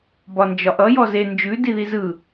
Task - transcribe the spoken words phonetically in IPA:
b ɒ n d͡ʒ ɒ ʔ ʌ j ɔ z e n d͡ʒ ʉ d i ð i z ɯ

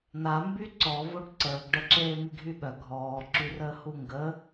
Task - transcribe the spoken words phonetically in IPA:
n a m b y ǀ ɔ v o ɖ ǀ əː ɡ ɖ ə ǁ eː m i ɡʱ y ɓ œ ɡʱ ɔː ǁ y r əː h u ŋ ɡ ə

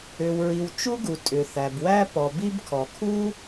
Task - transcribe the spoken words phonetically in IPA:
ʏ˩ w ɹ i˩ w t͡ʃ u˥ ɡ u˩ tʼ ʏ˩ θ æ˩ b w æ˥ p ɔ˩ b i˥ b kʰ ɔ˩ kʰ u˥

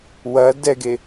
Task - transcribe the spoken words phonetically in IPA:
w ɐ d ɛ ɡ e

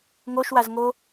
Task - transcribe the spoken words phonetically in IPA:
ŋ o ʃ w a z ŋ o

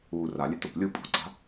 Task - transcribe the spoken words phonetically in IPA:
uː r a lʲ e t o p lʲ u pʼ ṳ ǀ a̤

